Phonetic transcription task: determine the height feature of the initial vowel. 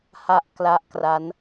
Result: low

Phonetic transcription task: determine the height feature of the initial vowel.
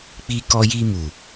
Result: high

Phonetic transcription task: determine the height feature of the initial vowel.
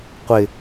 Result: high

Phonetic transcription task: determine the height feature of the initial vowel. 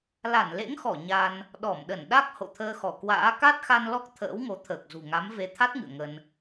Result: low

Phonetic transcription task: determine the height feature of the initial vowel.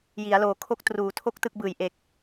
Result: high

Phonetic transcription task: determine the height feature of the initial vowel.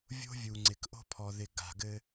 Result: mid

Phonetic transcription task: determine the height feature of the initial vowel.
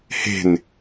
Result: mid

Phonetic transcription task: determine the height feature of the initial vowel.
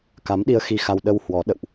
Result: low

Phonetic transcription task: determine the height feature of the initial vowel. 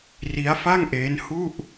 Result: high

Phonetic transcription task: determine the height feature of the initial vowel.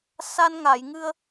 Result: low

